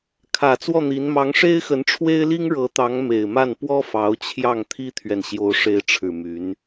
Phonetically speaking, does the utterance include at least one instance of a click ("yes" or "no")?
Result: no